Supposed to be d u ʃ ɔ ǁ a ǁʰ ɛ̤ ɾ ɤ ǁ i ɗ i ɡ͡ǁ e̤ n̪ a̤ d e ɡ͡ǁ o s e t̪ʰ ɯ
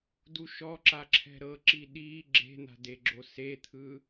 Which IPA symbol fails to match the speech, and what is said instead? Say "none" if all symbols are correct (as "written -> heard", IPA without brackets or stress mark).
none